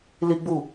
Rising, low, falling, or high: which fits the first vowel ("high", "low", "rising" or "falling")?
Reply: high